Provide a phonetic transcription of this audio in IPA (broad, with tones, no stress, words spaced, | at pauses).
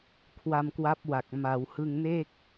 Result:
kʰwa˧mkwa˦˥p̚wa˨˩k̚ ma˩˦w hɯ˧ŋne˥˩k̚